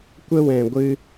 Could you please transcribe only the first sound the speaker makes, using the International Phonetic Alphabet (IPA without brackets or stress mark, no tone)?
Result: kʷ